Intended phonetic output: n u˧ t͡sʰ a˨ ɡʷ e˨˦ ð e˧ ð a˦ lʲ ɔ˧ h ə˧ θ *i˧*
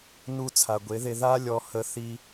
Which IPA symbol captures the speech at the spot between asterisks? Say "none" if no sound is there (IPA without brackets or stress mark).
i˧